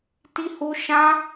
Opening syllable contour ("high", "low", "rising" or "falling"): high